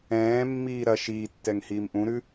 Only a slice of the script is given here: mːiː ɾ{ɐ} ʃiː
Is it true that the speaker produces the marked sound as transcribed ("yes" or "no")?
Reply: yes